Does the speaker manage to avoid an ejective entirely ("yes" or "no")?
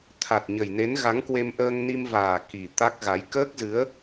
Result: yes